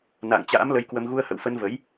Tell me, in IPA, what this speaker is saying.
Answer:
na̰ː˧˨ŋt͡ɕa̰ː˧˥m lə˧jkwə˧m ɣu˧ə̯hə̰˧˨wfə˧nvə˨˦j

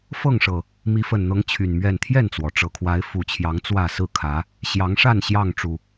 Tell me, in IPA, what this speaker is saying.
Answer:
fɤ˥˨ŋʂɤ˨˩ | mi˨˦fə˨˩nn̪ɤ˨˦ŋ t͡ɕʰy˨˩nmɥɛ˥˨n t̪ʰjɛ˥˨nt͡swɔ˩ʈ͡ʂɤ˨˩kʰwa˨˦ɪ̯ fu˨˩t͡ɕʰjɑ˨˦ŋ t͡swä˥˨ sɹ̩˥˨kʰä˨˦ | ɕjɑ˨˦ŋʂa˥˨n ɕjɑ˥˨ŋʈ͡ʂu˨˩

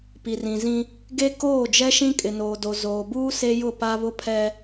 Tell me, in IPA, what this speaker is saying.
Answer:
pi˨rĩ˨zĩ˦ | ɡe˦koː˦˨d͡ʒɛ˦ʃĩ˦ kʼɪ˨noː˨do˨ zoː˨buː˦ se˦jʊ˦˨pa˦ βʊ˦pʰɛ˦

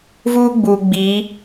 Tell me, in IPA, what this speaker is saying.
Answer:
vuː˦ɡ͡buː˨ ɡ͡biː˨˦

